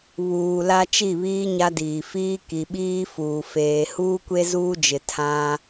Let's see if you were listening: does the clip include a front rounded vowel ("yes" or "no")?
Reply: no